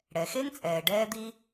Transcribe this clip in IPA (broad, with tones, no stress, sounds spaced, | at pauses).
ɽ ɛ˩ x e˥ ŋ t͡sʼ ɛː˩ ɖ ɛː˥ d̪ i˥